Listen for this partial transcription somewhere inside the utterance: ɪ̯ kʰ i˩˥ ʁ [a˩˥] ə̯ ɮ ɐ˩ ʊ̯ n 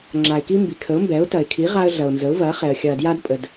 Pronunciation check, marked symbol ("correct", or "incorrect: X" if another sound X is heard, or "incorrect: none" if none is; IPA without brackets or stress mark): incorrect: a˦